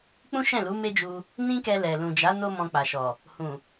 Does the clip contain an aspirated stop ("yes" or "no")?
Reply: no